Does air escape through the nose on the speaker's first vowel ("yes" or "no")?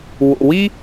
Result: no